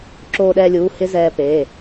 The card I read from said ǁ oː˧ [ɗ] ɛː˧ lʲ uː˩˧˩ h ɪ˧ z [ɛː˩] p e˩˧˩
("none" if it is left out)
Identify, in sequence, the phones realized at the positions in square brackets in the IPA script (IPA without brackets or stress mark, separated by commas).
ɗ, ɛː˧